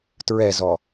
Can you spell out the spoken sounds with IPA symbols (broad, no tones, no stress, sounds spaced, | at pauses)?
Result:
t ɹ ɛ z ɔ